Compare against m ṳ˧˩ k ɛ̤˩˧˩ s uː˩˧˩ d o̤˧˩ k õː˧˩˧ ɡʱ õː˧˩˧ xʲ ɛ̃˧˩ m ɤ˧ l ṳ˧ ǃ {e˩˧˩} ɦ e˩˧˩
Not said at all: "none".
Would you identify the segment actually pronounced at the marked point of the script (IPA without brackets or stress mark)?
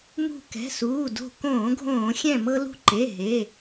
e˩˧˩